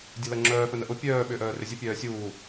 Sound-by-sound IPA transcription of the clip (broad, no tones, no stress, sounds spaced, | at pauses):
dʲ ɐ l ɐ ŋ͡ǁ œː f œ n ə ʔ ʊ pʲ œː ɓ ʏː ʔ œː r ʏ zʲ ə pʲ œː sʲ uː